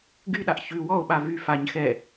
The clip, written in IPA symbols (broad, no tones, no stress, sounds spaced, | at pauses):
ɡ y ɗ a ʔ ç ʉ w ɔ o̯ ɓ a v y f a ɲ x ɛ